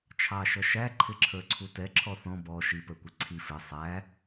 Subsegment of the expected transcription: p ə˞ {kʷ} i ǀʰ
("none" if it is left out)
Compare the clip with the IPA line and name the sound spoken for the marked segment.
kʷ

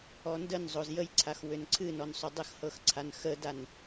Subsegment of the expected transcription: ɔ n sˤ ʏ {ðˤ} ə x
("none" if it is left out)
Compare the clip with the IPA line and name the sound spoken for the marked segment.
dˤ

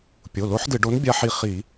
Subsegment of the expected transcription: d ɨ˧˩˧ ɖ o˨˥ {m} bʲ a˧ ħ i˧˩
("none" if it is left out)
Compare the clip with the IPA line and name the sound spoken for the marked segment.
n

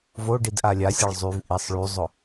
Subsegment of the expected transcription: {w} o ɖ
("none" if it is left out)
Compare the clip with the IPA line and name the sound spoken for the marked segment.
v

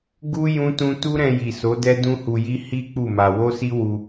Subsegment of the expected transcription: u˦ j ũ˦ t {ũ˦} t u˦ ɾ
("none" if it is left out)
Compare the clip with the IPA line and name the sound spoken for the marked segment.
ũ˦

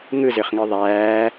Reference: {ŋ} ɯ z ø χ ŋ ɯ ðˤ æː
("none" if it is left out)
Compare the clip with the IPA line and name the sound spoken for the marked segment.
ŋ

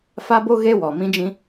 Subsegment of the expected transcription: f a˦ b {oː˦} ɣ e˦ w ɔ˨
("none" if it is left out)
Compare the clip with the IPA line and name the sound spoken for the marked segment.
o˦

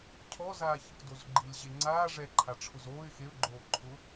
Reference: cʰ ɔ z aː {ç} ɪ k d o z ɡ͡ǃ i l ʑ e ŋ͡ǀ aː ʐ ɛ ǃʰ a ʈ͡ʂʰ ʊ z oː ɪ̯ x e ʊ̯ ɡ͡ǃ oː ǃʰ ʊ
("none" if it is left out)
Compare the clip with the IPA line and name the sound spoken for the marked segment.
ç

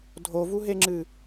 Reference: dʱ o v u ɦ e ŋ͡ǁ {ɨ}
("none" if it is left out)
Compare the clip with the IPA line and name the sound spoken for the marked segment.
ɨ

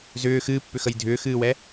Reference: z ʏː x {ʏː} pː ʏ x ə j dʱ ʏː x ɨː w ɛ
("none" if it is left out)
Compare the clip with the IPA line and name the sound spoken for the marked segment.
ɨː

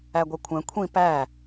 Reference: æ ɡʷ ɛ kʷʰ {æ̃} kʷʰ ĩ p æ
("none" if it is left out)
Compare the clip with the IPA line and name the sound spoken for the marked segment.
æ̃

